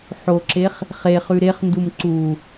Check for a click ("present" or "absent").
present